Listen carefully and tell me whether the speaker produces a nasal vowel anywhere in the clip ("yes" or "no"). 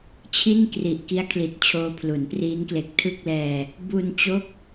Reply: no